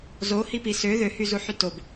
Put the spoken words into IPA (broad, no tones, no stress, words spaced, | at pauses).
zohipi sø ðøhyzuħy tob